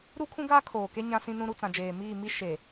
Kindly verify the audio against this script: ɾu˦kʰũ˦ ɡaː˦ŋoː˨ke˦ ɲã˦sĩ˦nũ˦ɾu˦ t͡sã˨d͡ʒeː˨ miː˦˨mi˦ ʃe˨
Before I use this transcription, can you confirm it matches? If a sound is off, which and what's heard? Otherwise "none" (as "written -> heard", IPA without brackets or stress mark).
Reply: ŋ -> kʰ